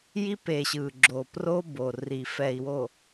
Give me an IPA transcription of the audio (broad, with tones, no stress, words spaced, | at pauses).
ji˦pe˨ɕɯ˨ɡ͡ǁo˨ pro˦ bo˨ri˨ fɛ˨i̯wo˨